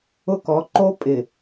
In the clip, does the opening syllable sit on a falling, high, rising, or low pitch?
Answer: high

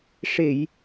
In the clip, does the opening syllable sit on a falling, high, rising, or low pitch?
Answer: low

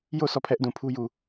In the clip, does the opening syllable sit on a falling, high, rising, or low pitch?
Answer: falling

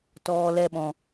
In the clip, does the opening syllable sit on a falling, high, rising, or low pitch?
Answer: low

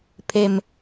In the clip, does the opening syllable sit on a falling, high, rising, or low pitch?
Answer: low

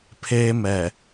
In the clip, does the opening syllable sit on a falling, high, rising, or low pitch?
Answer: high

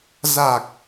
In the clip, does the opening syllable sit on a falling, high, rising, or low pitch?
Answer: low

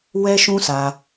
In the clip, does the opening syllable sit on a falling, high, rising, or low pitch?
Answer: high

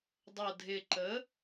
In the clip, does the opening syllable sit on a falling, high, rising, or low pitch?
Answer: low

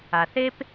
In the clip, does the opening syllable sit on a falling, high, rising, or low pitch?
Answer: low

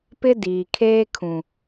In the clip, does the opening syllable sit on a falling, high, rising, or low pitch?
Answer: high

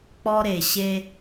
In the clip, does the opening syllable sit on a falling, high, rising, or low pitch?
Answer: high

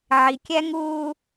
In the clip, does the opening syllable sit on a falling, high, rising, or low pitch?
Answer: low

